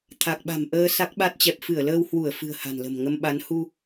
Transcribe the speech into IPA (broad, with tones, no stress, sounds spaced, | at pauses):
t̪ʰ a˨˩ k̚ ɓ a̤˨˩ m ʔ əː˧ s a˦˥ k̚ ɓ a˦˥ t̚ t͡ɕ ɛ˨˩ p̚ f ɨ˧˩ ə̯ l əː˧ w h w u˧˩ ə̯ f ɨ̤˨˩ ə̯ h a̤˨˩ n l ə̤˨˩ m ŋ ə˧ m ɓ a˨˦ n h u˧